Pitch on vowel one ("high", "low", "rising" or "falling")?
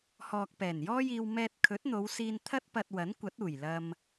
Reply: low